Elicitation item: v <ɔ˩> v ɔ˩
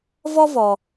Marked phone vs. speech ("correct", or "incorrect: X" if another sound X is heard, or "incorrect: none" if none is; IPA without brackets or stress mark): incorrect: ɔ˥